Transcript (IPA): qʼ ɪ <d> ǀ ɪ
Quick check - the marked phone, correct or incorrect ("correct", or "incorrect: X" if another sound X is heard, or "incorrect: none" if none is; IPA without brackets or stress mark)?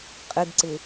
correct